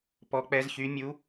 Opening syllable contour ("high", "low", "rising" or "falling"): rising